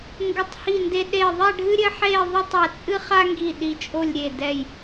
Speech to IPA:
ŋɡɘ˧˩tˤhi˧˩nde˧ ɗe˧˩ðˤɛ˥˧ ɖʱɨ˥ɾʲɘ˥ħe˥˧ðˤo˥tˤ ɛ˧˩t͡sʼɨ˥χa˥ŋɡi˧˩ ɗi˧˩t͡ʃʼo˥˧lʲɾʲe˧˩ dɛ˧˩j

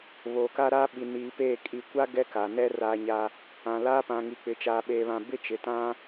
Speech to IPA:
βoː˨ka˦ɾaː˦ɓi˨ niː˨peː˦˨ kʼi˨kʷa˦ ɡɛ˦ka˨nɛ˦ raː˨ɲa˨ | ã˨ laː˦pã˨ŋi˨k͡pɪ˨˦ t͡ʃaː˨ɓeː˨βã˨ bɪ˦ t͡ʃɪ˨tã˦

